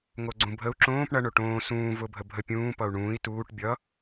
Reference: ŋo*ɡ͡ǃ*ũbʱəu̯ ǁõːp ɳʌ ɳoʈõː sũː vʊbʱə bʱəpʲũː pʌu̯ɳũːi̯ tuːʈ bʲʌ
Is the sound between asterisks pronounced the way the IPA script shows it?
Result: no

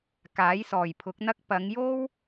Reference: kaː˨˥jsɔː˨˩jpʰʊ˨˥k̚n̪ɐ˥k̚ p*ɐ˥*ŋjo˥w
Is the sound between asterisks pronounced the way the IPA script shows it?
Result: no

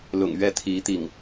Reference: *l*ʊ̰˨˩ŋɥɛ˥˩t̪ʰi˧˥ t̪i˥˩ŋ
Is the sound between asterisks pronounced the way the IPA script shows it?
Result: yes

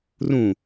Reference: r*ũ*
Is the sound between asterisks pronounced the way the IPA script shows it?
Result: yes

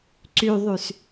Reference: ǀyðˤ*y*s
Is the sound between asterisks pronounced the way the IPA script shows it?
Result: yes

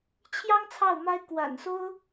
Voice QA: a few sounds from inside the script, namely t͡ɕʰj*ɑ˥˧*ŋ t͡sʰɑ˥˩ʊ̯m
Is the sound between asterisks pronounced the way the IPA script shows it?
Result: no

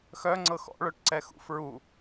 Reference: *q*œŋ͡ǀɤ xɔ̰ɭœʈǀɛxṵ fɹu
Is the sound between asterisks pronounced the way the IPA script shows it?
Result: no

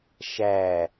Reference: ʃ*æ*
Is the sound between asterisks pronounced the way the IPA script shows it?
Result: yes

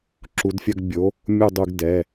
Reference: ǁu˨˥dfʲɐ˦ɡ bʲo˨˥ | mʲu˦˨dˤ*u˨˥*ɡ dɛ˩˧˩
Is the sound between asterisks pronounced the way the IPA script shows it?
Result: no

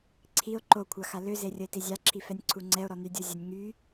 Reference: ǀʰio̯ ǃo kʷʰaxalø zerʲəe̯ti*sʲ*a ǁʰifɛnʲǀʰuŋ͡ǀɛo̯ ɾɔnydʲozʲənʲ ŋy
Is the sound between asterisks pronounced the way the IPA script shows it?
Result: no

